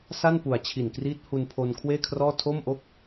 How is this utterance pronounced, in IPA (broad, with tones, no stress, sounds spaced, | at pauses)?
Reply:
s a˥˩ n p u˨˩ a̯ t͡ɕʰ i˨˩ n k r iː˦˥ t̚ h u˧ n pʰ o˧ n kʰ w eː˥˩ kʰ r ɔː˥˩ tʰ o˥˩ m ʔ o˥˩ k̚